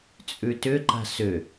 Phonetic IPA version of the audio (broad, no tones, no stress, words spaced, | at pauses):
t͡sʼʉtʏǃa̤ sʏ